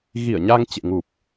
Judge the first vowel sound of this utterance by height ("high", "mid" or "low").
high